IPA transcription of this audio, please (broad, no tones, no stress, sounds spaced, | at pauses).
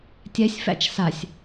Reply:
tʲ æ sʲ f æ̰ t͡ʃ s a sʲ